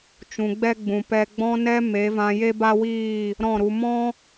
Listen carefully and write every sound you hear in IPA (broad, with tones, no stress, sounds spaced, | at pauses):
t͡ʃ ũ˨ ɡ͡b ɛ˦ ɡ͡b ũ˨ p ɛ˨ ɡ͡b ɔ̃˧ n ɛ˧ m e˨˦ v ã˧ j e˦ b a˦ w iː˦˨ | ɾ ɔ̃˦˨ ɾ u˧ m ɔ̃˦